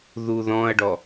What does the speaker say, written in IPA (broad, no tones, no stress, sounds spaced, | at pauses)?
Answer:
ð u ð ɔ̃ ɐ̯ ɖ ɔ